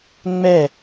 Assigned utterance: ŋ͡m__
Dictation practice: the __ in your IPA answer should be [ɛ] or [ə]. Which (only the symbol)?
ɛ